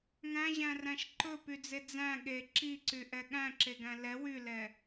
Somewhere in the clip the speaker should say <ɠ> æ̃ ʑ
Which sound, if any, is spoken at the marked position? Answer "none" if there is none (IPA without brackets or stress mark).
ŋ